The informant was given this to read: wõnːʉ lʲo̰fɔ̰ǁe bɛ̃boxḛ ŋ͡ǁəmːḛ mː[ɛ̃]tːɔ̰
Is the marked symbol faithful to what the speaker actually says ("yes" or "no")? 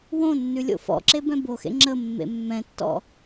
yes